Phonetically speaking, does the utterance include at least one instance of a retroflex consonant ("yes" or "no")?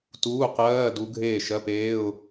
no